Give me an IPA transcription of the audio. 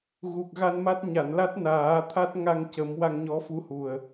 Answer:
ɣ u˨˩ k̚ ɣ a˧ n m a˦˥ t̚ ɲ a˨˩˨ n l a˦˥ t̚ n aː˨˩˦ t̪ʰ a˦˥ t̚ ŋ a˧ ŋ c ə˨˩˦ m w a˧ ŋ ɲ ɔ˧˥ f u˧˥ h u˨˩ ə̯

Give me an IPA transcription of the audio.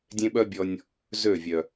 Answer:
dʲ ẽ˦ ɓ œ˦ bʲ ɔ˧ nʲ | z ø˦˨ vʲ œ˨

